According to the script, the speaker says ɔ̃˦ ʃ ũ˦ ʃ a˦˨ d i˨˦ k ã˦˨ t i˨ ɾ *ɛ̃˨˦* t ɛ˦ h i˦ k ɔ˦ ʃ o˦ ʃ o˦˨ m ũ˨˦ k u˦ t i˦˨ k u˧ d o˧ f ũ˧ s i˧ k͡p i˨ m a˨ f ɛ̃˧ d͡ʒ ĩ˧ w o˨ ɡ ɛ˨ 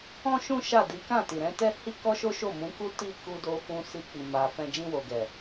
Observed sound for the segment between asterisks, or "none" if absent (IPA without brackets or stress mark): ɛ̃˨˦